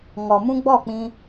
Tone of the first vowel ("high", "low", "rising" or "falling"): low